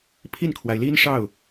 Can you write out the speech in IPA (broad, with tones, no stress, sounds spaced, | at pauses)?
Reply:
pʰ i˥˩ n kʰ w a˩ ɪ̯ l i˥ n ʂ ɑ˥˩ ʊ̯